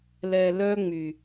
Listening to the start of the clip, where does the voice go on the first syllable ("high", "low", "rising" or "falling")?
low